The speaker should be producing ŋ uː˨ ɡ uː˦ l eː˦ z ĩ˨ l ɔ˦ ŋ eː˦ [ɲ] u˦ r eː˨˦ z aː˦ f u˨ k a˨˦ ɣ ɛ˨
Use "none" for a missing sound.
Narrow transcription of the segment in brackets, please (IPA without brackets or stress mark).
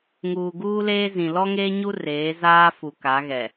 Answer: ɲ